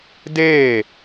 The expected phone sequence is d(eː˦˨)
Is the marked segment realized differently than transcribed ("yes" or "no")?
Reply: no